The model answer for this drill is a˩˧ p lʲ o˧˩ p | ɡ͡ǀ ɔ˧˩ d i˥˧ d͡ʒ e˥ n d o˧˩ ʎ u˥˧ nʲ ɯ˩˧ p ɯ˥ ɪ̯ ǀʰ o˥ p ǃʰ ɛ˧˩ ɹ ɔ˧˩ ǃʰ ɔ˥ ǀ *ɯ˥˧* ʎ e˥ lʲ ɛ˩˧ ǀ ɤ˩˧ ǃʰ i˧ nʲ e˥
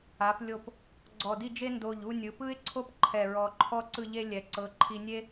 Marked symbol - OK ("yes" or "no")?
yes